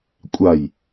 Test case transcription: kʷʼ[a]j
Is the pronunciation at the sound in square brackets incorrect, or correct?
correct